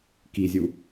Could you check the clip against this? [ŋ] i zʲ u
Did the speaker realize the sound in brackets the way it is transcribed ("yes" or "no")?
no